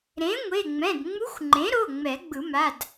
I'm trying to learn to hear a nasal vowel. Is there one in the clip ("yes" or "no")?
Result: yes